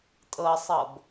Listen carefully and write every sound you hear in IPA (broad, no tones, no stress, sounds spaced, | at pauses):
tʼ ɤ sˤ ɤ b